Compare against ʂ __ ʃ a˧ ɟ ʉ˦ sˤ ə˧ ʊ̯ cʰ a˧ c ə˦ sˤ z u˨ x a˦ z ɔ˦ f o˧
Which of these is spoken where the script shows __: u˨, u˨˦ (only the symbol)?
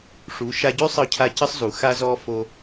u˨˦